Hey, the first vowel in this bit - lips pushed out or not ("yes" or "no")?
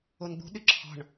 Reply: yes